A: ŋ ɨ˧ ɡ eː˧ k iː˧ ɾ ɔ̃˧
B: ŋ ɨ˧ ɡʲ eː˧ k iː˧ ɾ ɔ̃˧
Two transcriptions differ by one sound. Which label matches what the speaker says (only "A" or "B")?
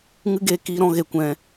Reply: A